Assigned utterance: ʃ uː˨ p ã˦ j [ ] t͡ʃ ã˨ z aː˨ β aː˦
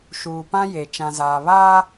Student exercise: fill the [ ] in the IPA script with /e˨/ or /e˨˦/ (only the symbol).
e˨